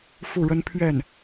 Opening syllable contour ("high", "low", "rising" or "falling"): falling